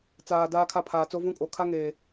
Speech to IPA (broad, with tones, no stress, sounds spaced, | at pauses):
t͡s aː˨ d aː˦ kʰ a˦˨ pʰ aː˨ t͡s o˦ v ũ˦ kʼ o˨ kʰ a˦ ŋ eː˨